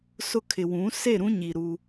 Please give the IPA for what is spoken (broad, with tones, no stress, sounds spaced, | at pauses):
s ʊ˦ kʰ ɪ˨ w ũ˨˦ s e˦˨ ɾ ũ˦ ɲ i˨ ɾ u˦